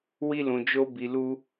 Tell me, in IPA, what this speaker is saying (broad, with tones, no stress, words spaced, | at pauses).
wi˦lũ˧d͡ʒo˦ bi˧lu˦